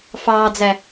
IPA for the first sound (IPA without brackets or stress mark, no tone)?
f